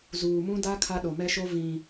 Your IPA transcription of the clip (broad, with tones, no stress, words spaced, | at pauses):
zuː˨mũ˦da˦ kʰa˦ɗo˨mɛ˦ʃo˦ vĩ˨